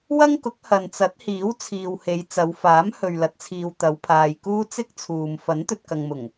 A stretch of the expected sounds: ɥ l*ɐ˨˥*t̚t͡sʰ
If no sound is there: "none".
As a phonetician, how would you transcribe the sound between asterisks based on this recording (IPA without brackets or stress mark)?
ɐ˨˥